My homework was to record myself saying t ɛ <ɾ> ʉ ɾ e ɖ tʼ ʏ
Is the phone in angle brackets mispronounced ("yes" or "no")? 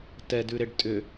yes